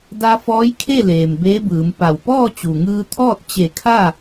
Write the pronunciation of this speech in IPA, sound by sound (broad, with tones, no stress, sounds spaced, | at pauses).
d a˧ f ɔː˧˥ j kʰ e˥˨ l eː˩ m b eː˧˥ b ɯː˩˧ m p a˧˩ w p ɔː˥˨ t͡ɕ u˩ ŋ ɯː˧ t̪ʰ ɔː˥˨ t̚ t͡ɕ e˧˩ kʰ a˥˨